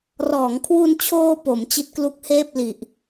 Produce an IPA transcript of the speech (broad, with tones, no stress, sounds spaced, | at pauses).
r ɔː˩˦ ŋ kʰ w u˧ n t͡ɕʰ oː˧ p o˩˦ m t͡ɕ i˦˥ t̚ k l u˦˥ k̚ h eː˥˩ p̚ l i˨˩ ʔ